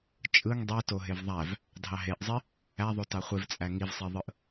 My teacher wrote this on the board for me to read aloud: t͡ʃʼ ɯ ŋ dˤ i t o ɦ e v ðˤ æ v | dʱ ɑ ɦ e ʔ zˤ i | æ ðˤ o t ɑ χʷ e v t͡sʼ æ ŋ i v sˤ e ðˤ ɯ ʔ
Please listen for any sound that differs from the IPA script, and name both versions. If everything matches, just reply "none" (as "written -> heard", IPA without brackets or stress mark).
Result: none